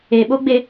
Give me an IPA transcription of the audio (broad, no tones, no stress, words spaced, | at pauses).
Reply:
eɓoɡ͡be